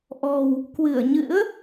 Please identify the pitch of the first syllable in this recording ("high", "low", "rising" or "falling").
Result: low